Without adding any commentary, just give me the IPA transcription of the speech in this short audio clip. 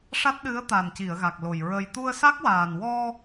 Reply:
ʂ a˦˥ t̚ ɗ ɨ˧˥ ə̯ t̪ a˨˩ n c i˨˩˨ ə̯ ɣ a˨˩ k̚ l o˨˩ j ɹ ə˧ j t̪ u˧ ə̯ s a˦˥ k̚ w aː˨˩ n w ɔ˧

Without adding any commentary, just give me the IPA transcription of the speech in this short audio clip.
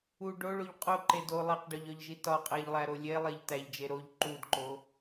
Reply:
u ɖ o ɭ o ʎ qʼ o ǃ e d o lˠ i q ɖ ɒ ʎ ɒ ʎ ʒ i t ɒ qʼ æ ʎ lˠ æ ɾ o lʲ e lˠ e ʎ t æ ʎ d͡ʒ e ɾ o ʎ ǃ u d ǃ o

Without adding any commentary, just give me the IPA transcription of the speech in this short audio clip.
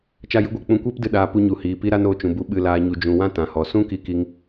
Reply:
t͡ʃ a˦ j ɨ˦ ɡʷ e˨ k͡p ũ˧ kʷ eː˦ p d ɨ˧ ɗ aː˧ p u˧ ɲ u˨ h iː˨ p i˦ ɾ a˦ n oː˧ t͡ʃ ũ˨ b u˧ ɓ ɨ˨ l aː˨ ɲ u˨ d͡ʒ ũ˨ w ã˦ t ã˨ h ɔ˨ s ũ˦ k i˧ k i˧ ŋ

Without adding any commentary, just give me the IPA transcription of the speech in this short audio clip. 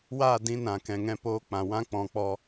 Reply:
w aː˦˨ d ĩ˧ n ã˨ k ɛ̃˨ ŋ ɛ̃˧ p oː˧ k͡p ã˨ w ã˦ k͡p ɔ̃˧ k͡p ɔ˦

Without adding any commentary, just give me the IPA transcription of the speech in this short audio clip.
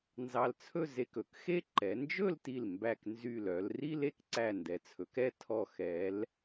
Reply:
n z ɑ˧ l t͡sʰ ɵ˥˧ z e˧ k ɵ˩˧ k x e˥ ǃ ɛ˩˧ n d͡ʒ ɵ˥˧ l t i˧˩ l m b æ˧˩ k n z y˧˩ l œ˩˧ l r i˥ l e˧ k ǀ æ˧˩ n d ɛ˩˧ t͡sʰ ɵ˩˧ k ɛ˥˧ tʰ ɔ˧˩ x ɛ˩˧ l

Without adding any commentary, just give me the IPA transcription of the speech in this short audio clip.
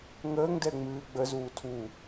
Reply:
ŋ əː ŋ d ɛ ŋ͡m ɨː ɡ͡b ə z uː tʰ u

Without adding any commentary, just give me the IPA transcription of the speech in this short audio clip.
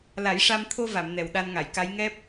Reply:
l a˨˩˦ j ʂ a˧ m t̪ʰ o˧ v a˨˩˨ m n ɛ˨˩ w ɗ a˧ n ŋ a˨˩˨ j k a˧˥ j ŋ ɛ˦˥ p̚

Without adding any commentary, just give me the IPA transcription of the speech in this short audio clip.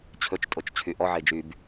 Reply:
t͡ɕʰ ɵ t͡ʃ tʼ o t͡ʃ t͡ɕʰ y ʔ ɔ ʕ e d͡ʒ y b

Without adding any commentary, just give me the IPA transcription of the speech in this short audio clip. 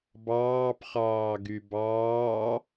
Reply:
b ɑː p χ ɑː ɡ y b ɑː

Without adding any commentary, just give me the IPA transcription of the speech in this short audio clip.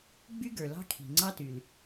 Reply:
ɡ͡b y˥ ɡ ə˞˩ l ɑ̤˥ kʰ i̤˩ ŋ͡ǀ ɑ˥ t y˩ l

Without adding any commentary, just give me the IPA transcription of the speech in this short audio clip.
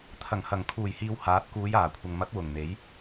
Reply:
t̪ʰ ɐ˨˩ ŋ h ɐ˨˩ ŋ kʰ uː˨˩ j h iː˧ w h aː˨˥ t̚ k uː˨˧ j aː˨˩ kʷʰ ɐ˨ ŋ m ɐ˨˥ t̚ w ʊ˨˩ ŋ n̪ e˨˥ j

